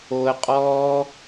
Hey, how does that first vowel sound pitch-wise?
low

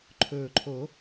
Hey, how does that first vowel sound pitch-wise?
low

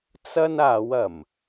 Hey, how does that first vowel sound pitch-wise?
high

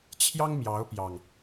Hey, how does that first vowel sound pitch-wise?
high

